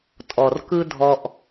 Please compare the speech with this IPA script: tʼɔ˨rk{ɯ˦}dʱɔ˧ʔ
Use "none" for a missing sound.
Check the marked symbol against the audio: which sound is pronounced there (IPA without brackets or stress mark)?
ɯ˦